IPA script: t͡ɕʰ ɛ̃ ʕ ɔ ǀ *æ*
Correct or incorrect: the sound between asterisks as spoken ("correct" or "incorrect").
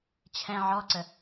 incorrect